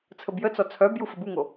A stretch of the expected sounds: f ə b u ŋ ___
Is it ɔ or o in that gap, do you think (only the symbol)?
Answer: o